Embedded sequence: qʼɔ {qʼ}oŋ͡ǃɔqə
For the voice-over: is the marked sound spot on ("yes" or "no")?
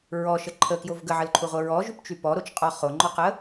no